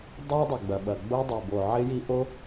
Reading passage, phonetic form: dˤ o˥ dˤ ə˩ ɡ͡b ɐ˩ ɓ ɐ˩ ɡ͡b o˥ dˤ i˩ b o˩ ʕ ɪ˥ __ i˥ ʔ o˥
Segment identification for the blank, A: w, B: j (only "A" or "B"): B